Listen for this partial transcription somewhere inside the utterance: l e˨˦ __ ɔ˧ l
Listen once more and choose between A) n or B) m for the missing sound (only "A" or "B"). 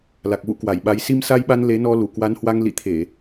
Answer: A